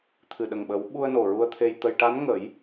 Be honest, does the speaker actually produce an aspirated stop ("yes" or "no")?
yes